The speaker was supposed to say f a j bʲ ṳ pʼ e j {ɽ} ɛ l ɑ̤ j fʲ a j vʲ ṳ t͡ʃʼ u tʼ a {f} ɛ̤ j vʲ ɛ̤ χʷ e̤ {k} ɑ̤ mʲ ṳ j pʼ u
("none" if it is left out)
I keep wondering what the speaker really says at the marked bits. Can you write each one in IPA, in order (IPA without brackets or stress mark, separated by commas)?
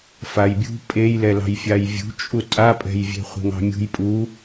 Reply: l, pʼ, ŋ